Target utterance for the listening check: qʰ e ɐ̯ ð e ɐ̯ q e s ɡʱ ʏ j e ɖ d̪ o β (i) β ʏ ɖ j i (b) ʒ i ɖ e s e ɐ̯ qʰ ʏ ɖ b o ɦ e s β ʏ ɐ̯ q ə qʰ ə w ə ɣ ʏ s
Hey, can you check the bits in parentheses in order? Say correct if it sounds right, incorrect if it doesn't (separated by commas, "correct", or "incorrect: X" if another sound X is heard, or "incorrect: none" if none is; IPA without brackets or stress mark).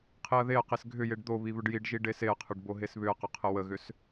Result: correct, incorrect: ɖ